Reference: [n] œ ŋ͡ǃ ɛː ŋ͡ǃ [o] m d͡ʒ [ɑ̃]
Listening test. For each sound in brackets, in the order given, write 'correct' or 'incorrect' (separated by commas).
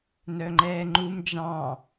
correct, incorrect, correct